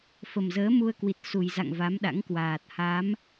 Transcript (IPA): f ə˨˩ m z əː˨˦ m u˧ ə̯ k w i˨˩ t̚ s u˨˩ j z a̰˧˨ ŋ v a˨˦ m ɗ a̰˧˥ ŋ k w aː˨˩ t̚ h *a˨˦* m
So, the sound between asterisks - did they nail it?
yes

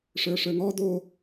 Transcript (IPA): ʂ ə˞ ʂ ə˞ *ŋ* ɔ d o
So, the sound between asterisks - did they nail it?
yes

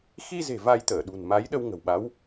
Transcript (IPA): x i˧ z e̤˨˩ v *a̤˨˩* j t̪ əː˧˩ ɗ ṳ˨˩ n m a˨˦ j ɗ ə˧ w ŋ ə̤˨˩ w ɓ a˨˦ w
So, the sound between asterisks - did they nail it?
no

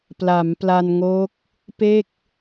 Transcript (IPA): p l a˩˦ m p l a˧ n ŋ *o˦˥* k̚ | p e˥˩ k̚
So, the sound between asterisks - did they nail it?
yes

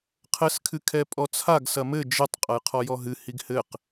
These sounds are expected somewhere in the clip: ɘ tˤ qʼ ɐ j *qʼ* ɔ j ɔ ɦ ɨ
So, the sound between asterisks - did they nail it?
no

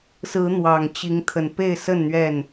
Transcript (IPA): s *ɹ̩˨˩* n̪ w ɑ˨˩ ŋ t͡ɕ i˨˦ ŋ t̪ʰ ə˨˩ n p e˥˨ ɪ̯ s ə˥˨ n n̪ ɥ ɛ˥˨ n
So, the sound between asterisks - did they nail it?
no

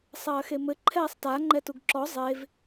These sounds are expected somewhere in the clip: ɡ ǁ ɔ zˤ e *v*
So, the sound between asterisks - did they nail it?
yes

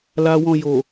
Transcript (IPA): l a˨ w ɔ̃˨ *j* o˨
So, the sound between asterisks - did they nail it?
yes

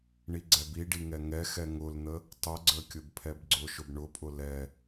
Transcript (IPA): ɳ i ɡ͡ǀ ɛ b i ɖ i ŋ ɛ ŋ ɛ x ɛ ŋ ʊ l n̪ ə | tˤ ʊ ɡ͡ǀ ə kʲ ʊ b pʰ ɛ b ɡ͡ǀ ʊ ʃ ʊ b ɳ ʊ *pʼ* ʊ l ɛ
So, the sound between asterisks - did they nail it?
yes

